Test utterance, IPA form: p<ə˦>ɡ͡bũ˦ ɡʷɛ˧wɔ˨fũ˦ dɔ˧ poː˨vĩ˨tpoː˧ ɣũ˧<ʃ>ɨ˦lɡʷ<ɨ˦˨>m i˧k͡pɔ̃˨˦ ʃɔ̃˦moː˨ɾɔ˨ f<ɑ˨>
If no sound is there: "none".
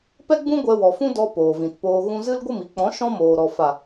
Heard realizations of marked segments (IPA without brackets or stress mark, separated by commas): ɛ˦, z, ɨ˦˨, a˨